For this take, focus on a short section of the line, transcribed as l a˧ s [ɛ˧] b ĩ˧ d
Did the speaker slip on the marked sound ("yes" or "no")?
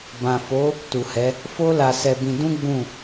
no